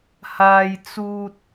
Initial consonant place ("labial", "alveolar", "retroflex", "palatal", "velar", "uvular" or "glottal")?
glottal